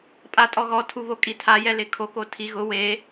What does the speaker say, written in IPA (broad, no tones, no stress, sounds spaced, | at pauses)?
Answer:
pʼ a tʼ ɔ ɣ ɔ tʰ u β o kʼ i tʰ a j ɛ l ɪ kʰ o k o tʰ i ɣ ʊ w e